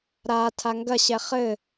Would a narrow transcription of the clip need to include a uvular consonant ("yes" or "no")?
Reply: yes